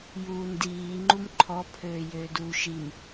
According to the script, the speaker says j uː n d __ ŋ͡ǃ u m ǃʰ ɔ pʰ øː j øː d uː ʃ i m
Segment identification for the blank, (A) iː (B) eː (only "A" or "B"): A